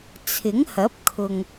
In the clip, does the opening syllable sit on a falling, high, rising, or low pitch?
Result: rising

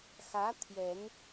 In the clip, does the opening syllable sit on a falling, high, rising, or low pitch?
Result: rising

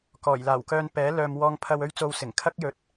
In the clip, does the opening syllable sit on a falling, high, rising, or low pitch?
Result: low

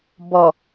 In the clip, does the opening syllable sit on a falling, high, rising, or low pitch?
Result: low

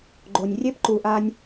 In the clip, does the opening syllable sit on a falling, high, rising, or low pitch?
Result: low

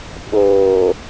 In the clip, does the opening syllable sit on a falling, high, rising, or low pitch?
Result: low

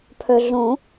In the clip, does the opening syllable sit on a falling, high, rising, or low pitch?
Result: low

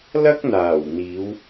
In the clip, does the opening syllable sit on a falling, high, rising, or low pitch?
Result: high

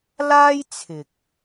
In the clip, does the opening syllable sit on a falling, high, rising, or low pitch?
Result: high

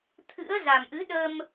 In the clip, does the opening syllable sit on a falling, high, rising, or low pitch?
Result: rising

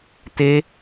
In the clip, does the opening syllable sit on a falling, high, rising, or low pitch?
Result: high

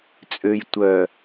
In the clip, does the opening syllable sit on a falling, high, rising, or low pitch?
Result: low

